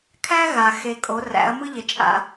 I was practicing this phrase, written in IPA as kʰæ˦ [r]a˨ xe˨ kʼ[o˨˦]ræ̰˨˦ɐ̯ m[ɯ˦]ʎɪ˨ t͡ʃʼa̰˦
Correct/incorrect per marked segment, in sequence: incorrect: ɣ, correct, correct

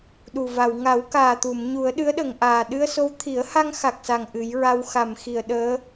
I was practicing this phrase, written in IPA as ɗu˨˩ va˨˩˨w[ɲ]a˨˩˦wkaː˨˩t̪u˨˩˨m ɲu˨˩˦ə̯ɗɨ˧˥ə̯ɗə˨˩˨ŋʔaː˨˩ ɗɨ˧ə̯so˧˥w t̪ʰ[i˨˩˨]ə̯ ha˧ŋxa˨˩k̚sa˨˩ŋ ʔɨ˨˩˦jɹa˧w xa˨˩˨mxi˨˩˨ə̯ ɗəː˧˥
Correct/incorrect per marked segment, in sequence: incorrect: ŋ, incorrect: i˨˩˦

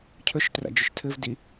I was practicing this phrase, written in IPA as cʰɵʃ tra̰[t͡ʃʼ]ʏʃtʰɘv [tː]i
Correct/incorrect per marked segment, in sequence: incorrect: d͡ʒ, incorrect: d

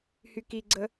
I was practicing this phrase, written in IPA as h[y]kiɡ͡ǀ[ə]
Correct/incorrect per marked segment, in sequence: correct, correct

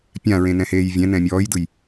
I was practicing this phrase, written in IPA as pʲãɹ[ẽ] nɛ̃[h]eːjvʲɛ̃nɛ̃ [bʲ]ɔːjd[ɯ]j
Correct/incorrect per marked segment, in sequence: correct, correct, incorrect: mʲ, correct

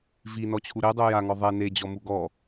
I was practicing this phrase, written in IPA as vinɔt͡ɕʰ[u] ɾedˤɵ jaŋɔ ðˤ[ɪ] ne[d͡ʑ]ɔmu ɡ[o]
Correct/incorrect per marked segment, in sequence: correct, incorrect: ɛ, correct, incorrect: ɔ

